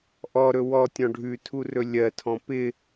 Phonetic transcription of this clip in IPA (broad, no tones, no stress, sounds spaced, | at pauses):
ʔ ɔ ɾ ɵ w ɔ tʲ ɔ̃ ɖʱ ʉ tʰ u r ɵ lʲ ɜ tʰ ɔ̃ p ɪ